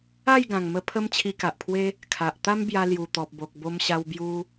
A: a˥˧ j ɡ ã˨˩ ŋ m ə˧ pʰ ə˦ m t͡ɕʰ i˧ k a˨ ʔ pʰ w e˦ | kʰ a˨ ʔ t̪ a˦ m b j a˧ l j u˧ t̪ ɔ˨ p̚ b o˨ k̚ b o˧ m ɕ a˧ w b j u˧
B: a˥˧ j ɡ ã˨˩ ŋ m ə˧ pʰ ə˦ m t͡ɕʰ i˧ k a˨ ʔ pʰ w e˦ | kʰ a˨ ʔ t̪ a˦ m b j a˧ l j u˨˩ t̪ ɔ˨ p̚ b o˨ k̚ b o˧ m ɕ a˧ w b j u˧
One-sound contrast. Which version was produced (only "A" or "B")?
B